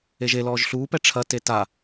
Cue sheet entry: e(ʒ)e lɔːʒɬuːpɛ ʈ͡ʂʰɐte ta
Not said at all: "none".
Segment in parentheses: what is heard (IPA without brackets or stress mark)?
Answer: ʒ